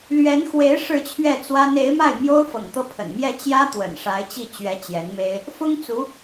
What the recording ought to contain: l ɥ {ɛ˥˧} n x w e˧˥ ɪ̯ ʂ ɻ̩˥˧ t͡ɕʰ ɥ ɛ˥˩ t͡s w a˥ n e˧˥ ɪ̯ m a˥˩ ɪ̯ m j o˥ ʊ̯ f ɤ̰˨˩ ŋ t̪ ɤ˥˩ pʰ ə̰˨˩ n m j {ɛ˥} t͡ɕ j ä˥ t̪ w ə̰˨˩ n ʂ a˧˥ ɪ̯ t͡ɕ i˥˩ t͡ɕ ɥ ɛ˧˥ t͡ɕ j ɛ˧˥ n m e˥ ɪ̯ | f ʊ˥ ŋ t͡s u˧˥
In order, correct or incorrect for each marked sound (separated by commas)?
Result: incorrect, incorrect